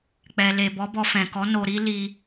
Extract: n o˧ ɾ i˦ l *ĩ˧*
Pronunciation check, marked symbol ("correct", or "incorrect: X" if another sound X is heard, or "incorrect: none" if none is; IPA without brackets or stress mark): incorrect: i˧